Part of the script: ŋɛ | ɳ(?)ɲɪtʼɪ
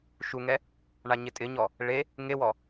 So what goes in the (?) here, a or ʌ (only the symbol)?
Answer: a